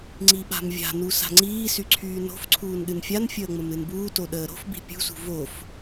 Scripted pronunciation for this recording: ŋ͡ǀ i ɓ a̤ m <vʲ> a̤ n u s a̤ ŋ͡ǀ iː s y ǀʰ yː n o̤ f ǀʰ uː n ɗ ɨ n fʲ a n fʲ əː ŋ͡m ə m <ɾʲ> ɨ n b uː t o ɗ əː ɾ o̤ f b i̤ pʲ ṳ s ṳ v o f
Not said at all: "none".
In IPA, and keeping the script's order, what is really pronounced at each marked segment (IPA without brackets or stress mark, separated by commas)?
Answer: vʲ, ɾ